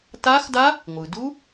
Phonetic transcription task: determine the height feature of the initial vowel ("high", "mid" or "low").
low